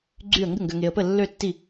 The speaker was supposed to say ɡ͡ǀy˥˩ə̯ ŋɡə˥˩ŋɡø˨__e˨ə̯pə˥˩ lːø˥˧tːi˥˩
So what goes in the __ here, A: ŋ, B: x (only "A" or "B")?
A